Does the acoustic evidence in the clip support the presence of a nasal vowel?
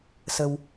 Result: no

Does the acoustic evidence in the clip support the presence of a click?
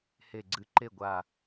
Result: yes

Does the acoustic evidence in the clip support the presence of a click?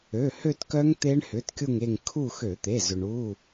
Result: no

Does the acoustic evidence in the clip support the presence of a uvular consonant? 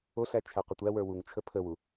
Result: yes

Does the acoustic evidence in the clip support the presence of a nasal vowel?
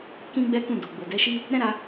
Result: yes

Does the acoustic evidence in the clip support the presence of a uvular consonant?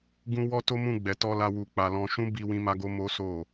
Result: no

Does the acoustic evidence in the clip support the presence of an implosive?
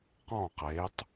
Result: no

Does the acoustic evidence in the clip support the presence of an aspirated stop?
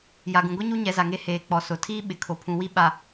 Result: yes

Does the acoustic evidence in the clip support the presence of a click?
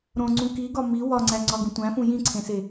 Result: yes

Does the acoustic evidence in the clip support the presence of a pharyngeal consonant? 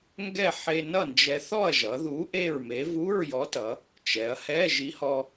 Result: yes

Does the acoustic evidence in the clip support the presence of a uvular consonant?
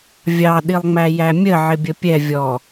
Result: no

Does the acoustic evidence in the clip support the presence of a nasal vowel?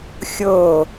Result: no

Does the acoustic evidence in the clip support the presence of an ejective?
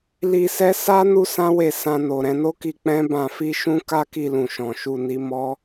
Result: no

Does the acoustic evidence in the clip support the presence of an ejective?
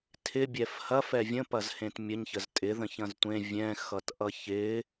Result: yes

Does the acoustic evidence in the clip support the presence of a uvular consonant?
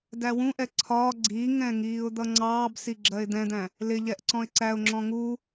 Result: no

